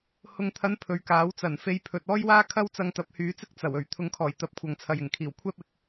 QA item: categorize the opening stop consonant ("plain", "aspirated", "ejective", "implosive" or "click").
aspirated